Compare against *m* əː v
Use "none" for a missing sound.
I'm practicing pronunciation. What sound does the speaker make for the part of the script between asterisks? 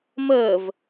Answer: m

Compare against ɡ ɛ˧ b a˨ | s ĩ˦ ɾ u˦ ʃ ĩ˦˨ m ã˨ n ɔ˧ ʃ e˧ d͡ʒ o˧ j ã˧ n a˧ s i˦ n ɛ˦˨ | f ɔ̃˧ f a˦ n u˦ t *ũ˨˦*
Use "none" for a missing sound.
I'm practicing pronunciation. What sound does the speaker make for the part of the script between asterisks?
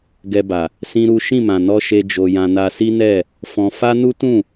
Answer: ũ˦˨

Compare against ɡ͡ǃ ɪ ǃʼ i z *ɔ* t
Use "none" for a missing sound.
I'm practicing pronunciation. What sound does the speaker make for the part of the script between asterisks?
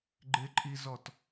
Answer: ɔ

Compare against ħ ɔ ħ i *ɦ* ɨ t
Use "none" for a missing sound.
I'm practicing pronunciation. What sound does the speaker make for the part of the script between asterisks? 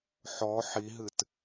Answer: ɦ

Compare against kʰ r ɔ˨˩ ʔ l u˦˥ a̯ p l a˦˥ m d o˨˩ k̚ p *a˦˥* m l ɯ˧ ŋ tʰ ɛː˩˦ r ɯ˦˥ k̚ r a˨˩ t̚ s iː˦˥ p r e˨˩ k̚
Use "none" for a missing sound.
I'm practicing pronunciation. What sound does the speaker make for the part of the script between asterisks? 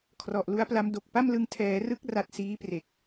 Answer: a˥˩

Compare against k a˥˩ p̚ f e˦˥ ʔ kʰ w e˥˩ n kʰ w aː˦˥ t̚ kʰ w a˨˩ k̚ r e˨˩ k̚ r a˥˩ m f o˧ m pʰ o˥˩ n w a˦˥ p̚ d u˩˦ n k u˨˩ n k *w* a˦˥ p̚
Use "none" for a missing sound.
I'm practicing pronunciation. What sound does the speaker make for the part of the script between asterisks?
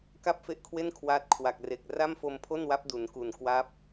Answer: w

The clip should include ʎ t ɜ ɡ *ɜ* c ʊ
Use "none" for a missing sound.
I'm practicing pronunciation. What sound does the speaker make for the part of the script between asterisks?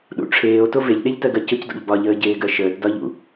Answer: ɜ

